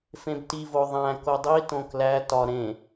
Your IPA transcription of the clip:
f ẽ b t i v o ðˤ æ̃ k o dˤ i t õ k l æ t ɒ ɾ ẽ

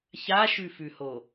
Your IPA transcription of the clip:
ç a ʃ ʉ f ʉ h o

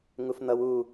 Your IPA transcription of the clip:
ŋ u f n̪ ʌ w u

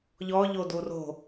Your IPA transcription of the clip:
ʎ ɔ ʎ o d u r o̤

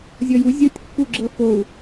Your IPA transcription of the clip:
zʲ ɔ j u zʲ o tʲ kː u ɡ͡ǁ ɤ f o u̯

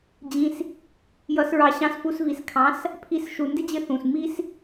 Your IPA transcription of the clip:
d͡ʑ ĩ˧ s | j ʌ˧ s ɹ ɑ˧ ɕ ɑ̃˧ s f u˧ s v i˨ s kʰ ɑ̃˨˦ s | pʰ i˧ s ʃ u˨ n d ɪ˦ d͡ʑ ɪ˧ θ ũ˨ s m i˦ s

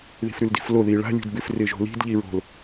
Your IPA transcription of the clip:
ð i̤ f ɾ ʉ l d i̤ f l o ð i ɭ a̤ lʲ ṳ d b ɪ f r ɪ ʒ o̤ l i̤ d ʎ i ɹ o̤ l

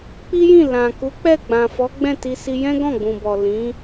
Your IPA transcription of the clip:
k͡p i˦ j ĩ˦˨ l ã˨ k u˨˦ k͡p ɛ˦˨ ɡ͡b ã˨ f ɔ˨˦ ɡ͡b ɛ̃˦˨ t i˧ s i˧ j ɛ̃˦ ɡ ɔ̃˦˨ ɡ͡b ũ˨ b ɔ˨ l ĩ˨˦

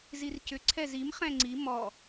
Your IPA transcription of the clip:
z i r c ʏ ǀʰ ɛ z i m χ ɛ̃ ŋ͡ǀ i m ɔ

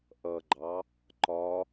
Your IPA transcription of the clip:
ʔ ʌ ɡ͡ǃ ɑ | ǃ ɒ

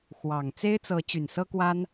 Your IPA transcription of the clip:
x w ɑ˨˩ ŋ t͡s e˥ ɪ̯ t͡s ɤ˧˥ t͡ɕ y˨˩ n s ɤ˥ k w a˥ n

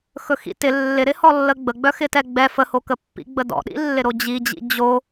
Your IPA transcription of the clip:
x ɵ x ḭ t ɪ lː ɪ ɾ ɪ h ɔ lː ə ɡ͡b ə ɡ͡b œ x ɪ t ɛ ɡ͡b ɛ f ə h o k ə pː ḭ ɡ͡b ə d ɔ̰ ɗ ḭ lː ɪ ɾ o d͡ʑ i d͡ʑ ḭ d͡ʑ o

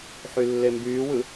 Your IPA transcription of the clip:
ħ y lː e m b yː w ɯ

